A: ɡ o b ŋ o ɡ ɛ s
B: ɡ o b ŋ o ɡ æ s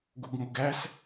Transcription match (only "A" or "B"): B